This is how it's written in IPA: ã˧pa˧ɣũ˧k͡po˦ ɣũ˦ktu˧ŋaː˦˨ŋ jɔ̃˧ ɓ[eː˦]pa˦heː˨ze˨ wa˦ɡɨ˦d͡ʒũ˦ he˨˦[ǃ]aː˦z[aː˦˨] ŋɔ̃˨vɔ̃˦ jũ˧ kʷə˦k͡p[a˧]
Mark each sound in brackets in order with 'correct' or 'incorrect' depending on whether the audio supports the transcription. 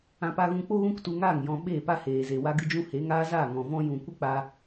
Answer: incorrect: eː˦˨, incorrect: ŋ, correct, correct

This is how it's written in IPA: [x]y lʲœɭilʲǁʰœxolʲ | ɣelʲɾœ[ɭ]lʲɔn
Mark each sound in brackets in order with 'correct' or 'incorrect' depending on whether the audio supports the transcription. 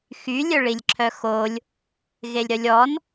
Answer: correct, incorrect: none

